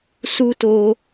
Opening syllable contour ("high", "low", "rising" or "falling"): high